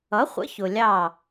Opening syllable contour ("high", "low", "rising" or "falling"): rising